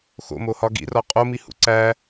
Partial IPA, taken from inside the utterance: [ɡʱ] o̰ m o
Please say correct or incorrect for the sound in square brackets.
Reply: incorrect